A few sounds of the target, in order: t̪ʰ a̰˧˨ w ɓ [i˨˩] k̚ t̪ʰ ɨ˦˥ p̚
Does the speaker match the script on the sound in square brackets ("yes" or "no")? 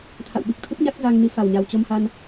yes